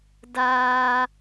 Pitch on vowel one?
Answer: high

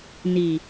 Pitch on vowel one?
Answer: low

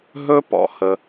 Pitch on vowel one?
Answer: high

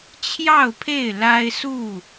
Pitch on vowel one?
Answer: falling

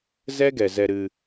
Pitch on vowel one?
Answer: high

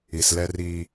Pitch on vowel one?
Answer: low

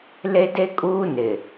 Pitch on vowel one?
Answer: high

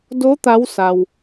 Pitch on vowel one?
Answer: rising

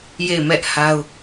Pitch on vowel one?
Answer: falling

